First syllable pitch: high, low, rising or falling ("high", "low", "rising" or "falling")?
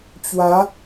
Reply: rising